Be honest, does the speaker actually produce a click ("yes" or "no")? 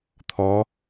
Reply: no